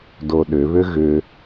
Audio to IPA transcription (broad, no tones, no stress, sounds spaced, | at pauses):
d o ɗ ʏ β ʏ ɣ ʏ